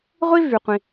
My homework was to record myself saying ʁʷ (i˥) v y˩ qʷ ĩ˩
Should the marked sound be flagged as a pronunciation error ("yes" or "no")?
no